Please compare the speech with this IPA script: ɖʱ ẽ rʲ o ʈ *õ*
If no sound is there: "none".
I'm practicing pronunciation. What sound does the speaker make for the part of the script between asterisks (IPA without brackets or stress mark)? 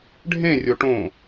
õ